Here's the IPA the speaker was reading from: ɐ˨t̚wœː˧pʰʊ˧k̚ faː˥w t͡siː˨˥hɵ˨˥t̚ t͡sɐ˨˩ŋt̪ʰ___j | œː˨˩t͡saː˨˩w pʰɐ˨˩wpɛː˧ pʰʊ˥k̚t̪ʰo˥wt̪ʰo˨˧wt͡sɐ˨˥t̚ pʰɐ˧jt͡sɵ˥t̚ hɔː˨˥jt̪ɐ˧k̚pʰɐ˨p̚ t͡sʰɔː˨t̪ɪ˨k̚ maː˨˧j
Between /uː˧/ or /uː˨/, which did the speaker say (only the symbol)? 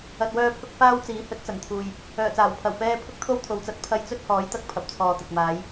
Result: uː˨